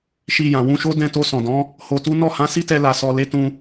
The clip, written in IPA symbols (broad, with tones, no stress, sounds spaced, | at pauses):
ʃ i˧ j ã˨ w ũ˧ ʃ o˦ d ɛ̃˧ t o˧ s ɔ̃˨ d ɔ̃˨˦ | h o˧ t u˦ n ɔ˦˨ h ã˨˦ s i˦ t ɛ˧ l a˨ s ɔ˨ l e˨˦ t ũ˧